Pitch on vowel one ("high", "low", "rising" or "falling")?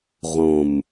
low